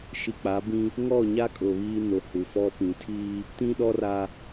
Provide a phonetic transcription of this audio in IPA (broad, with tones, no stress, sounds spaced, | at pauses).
ʃ i˨ k͡p a˨˦ b ĩ˦ | ŋ ɔ˦˨ ɲ a˦ kʼ ʊ˨ β iː˦ n ʊ˨ h u˨ f ɔ˦ p ĩ˨˦ tʰ iː˦ | t ĩ˦ ɗ ɔ˦ r a˦